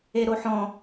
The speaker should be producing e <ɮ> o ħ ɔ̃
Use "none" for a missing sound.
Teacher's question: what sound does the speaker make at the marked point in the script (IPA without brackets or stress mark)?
ɾ